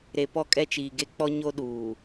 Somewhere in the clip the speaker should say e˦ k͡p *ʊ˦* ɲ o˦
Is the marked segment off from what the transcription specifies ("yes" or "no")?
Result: yes